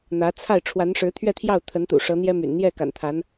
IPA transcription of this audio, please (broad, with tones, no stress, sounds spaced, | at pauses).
n̪ ä˧˥ t͡sʰ a˥˩ ɪ̯ ʈ͡ʂʰ w a˧˥ n ʂ ɻ̩˧˥ t̪ʰ ɥ ɛ˥˧ t̪ʰ j ɑ˥˩ ʊ̯ t̪ʰ ə˧˥ n t̪ ṵ˨˩ ʂ ɤ˧˥ n̪ j ɛ˥ m y̰˨˩ n n̪ j ɛ˥˩ k a̰˨˩ n t̪ʰ a˧˥ n